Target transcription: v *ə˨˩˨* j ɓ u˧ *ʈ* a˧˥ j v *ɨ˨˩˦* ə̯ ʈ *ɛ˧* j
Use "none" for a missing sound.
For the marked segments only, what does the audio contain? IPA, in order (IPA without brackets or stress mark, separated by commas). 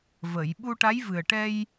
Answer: ə˨˩˨, ʈ, ɨ˨˩, ɛ˧